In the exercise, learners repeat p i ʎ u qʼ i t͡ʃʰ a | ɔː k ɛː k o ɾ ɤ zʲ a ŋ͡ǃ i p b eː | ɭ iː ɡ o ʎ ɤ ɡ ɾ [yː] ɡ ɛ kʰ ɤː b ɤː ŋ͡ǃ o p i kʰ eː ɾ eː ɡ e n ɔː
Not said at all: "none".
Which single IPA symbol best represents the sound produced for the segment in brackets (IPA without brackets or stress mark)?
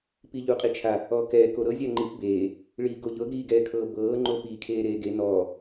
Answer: iː